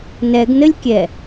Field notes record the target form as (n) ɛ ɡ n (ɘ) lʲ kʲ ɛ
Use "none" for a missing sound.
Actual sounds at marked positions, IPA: n, ɘ

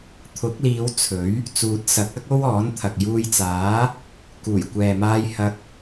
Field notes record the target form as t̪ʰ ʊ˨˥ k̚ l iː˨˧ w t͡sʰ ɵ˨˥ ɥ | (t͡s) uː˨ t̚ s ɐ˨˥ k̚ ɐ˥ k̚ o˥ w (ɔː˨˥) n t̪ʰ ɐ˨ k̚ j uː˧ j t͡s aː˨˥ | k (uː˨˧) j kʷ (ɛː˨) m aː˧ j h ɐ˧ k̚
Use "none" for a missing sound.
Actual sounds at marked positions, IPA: t͡s, ɔː˨˥, uː˨˩, ɛː˨

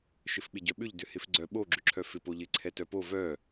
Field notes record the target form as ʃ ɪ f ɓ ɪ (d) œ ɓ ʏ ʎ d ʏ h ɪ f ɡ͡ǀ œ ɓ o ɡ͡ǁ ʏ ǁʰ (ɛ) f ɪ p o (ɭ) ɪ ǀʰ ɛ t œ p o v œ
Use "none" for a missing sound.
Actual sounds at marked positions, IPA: ɟ, œ, ʎ

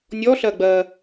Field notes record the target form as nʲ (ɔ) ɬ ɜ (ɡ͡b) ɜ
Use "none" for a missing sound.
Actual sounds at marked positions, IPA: ɔ, ɡ͡b

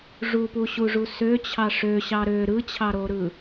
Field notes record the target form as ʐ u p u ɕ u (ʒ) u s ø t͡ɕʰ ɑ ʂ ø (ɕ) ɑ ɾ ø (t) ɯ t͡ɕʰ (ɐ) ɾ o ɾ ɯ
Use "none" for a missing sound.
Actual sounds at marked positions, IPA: ʐ, ɕ, ɾ, ɑ

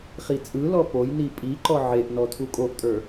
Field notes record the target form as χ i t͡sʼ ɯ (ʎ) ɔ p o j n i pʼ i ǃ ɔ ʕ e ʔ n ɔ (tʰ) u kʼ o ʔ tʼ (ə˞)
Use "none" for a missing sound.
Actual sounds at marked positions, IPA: l, tʰ, ə˞

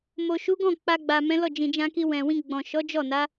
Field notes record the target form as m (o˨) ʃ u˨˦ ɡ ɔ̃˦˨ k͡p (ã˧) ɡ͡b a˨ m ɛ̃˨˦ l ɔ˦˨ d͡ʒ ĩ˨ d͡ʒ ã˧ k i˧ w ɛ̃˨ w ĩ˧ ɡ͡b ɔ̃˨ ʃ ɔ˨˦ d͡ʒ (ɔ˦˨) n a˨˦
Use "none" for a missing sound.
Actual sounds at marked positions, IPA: o˨, a˧, ɔ˦˨

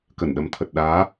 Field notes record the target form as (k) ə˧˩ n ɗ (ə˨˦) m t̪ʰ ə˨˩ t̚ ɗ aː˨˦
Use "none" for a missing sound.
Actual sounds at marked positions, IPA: k, ə˨˦

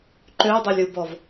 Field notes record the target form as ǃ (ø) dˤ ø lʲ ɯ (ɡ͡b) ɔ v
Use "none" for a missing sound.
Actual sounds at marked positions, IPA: ø, b

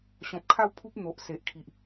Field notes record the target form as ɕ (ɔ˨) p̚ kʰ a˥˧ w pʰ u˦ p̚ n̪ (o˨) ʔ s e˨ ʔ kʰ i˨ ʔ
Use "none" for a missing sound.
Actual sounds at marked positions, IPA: ɔ̃˨, o˨

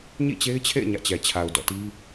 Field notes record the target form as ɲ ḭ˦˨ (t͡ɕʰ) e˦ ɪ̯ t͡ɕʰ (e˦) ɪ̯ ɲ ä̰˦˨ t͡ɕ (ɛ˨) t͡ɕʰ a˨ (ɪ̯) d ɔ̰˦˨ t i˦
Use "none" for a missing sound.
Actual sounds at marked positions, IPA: t͡ɕ, ḛ˦˨, ɛ˨, ʊ̯

